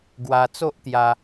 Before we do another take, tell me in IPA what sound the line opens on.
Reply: ɡ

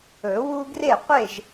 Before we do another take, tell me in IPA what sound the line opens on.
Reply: ɵ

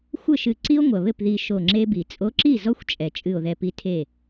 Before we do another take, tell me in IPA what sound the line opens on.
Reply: xʷ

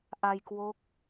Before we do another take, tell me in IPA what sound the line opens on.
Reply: ʔ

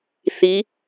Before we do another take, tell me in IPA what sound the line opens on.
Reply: θ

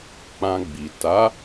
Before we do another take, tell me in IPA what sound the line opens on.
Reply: k͡p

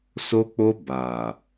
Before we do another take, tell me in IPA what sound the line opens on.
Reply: s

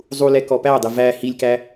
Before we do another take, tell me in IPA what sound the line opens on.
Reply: zˤ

